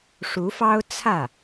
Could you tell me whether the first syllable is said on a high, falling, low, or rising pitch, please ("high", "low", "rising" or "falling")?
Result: rising